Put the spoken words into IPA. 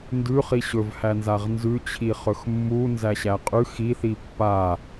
ndʉχi ɕɵvhæ nzaʁnzʉt͡ɕʰi χɵxmːu nzæɕæqʼʉ xiθi pːa

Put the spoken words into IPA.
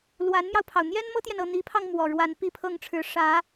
lwa˧˥nmjɑ˧ʊ̯pʰɑ˩ʊ̯ n̪jɛ˥nmɤ˥t̪jɛ˨n ɤ˥˩n̪i˧˥pʰɑ˧ŋ mwɔ˨˩ɻwa˧˥n pi˥˧pʰɤ˥˩ŋʈ͡ʂʰɻ̩˧˥ ʂä˧˥

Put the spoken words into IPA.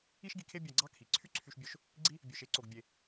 i˥ʃɡi˧kʰe˥ bʲɑ˧ ɡ͡ǀɑ˥kʰi˩ ǀʰy˥ǀʰy˧ʃbʲo˧ʃ | ɡ͡ǀi˥ | bʲø˧ʃe˥ǀo˧ɡ bʲe˧

